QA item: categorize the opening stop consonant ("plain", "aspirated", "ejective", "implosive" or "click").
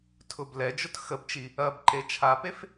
aspirated